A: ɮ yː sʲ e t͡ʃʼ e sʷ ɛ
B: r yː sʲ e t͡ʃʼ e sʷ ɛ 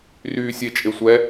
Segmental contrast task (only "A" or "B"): B